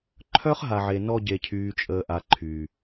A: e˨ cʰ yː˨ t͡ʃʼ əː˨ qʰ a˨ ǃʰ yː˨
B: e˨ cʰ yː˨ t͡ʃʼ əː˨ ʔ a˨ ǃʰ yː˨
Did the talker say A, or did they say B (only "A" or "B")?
B